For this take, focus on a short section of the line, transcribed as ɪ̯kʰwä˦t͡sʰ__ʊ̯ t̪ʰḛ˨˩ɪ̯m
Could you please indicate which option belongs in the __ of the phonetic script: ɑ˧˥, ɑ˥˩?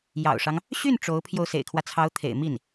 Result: ɑ˧˥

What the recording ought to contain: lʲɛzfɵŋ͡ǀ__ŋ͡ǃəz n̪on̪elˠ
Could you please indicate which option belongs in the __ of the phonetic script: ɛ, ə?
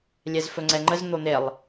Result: ɛ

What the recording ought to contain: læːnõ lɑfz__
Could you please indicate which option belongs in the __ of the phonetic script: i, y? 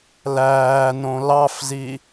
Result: i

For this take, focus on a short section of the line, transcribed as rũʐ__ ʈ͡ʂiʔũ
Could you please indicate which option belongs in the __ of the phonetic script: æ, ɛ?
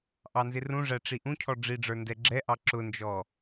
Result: æ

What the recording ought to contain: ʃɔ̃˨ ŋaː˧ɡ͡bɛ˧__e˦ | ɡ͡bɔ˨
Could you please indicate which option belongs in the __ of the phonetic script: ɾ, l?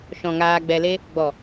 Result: l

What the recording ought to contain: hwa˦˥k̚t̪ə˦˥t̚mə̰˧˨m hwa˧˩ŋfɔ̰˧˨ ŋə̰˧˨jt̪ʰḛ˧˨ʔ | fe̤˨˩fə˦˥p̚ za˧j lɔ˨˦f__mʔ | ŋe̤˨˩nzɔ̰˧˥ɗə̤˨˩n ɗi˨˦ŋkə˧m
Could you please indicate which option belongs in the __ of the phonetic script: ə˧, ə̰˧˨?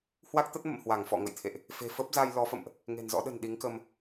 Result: ə̰˧˨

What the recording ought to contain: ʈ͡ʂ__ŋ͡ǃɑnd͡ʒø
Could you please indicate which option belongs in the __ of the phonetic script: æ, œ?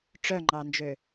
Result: œ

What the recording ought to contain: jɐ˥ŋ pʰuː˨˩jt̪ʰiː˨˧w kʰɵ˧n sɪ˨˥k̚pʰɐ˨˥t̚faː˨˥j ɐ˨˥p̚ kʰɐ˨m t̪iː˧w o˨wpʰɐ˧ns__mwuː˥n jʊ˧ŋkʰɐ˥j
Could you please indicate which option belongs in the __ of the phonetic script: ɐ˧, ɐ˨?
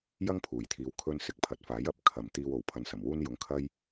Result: ɐ˨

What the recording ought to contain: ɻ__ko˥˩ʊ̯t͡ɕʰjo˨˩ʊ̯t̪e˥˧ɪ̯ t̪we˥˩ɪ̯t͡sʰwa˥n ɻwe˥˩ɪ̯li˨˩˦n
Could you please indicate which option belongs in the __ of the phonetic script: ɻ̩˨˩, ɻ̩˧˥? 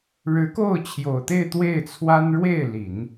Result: ɻ̩˧˥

